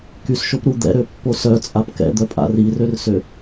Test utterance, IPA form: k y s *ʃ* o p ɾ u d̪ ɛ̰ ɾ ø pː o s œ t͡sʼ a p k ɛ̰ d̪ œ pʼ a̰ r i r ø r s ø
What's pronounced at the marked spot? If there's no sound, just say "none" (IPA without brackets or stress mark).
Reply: ʃ